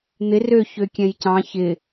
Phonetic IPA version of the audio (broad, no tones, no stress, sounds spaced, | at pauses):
n̪ ɪ r ø ç ø kʲ ɛ̃ j c ɑ̃ ç ɪ